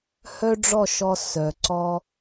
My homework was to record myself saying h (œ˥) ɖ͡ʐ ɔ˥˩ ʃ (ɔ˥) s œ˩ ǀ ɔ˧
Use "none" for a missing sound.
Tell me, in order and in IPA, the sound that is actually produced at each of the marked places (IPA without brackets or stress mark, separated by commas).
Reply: œ˥, ɔ˧